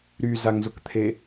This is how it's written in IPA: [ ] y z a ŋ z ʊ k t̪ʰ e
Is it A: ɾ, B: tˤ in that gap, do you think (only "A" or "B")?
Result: A